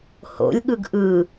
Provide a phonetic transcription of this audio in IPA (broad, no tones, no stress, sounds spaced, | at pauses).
h o̰ lʲ ɠ ɯ ɡ ʔ ɯ